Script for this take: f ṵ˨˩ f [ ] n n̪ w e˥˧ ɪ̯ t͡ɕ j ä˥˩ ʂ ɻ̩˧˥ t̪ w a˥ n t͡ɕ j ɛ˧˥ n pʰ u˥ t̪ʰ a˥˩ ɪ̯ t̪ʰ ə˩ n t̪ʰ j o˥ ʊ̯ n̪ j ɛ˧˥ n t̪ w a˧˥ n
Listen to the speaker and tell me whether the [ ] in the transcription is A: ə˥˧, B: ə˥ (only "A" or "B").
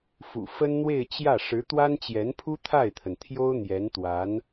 B